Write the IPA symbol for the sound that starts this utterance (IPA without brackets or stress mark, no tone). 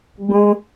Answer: ɡ͡b